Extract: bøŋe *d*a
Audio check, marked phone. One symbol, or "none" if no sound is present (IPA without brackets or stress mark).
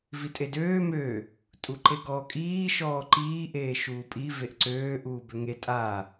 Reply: tʼ